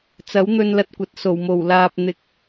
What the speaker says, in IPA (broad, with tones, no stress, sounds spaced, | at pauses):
t͡s ɐ˨˥ w n̪ ɵ˧ n l ɐ˧ t̚ kʷ ɐ˨ t̚ s o˨˩ w m o˨˩ w l aː˨ p̚ n̪ ɪ˨˥ k̚